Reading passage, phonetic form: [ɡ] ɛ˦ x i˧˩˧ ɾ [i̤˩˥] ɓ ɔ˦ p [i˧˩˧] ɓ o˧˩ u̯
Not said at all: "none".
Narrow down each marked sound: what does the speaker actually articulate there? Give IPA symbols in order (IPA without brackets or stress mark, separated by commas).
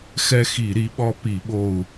x, i˩˥, i˧˩˧